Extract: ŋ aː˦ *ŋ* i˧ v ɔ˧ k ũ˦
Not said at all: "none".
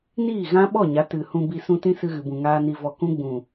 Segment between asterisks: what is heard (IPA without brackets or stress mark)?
n